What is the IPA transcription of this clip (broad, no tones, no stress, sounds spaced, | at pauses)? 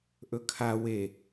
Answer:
ʔ ɵ kʰ a w e